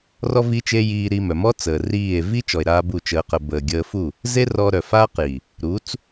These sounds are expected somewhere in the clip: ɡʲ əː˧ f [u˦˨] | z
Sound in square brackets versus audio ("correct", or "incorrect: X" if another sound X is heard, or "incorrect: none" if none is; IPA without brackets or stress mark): correct